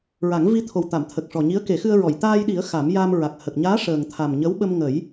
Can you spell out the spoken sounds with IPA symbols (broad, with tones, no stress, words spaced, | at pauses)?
ɹa˨˩˦ŋvi˧ t̪ʰo˨˩wt̪a˨˩˨mt̪ʰə˨˩k̚ ʂɔ˨˩ɲi˧˥ə̯ke˨˩˦xɨ˧ə̯ ɹɔ˨˩˨jt̪aː˧jɗi˨˩˦ə̯ xa˨˩˦mja˧m ɹa˨˩k̚hə˨˩k̚ɲaː˧˥ ʂəː˨˩ŋt̪ʰa˨˩mɲə˧˥wɓə˧m ŋə˨˩˦j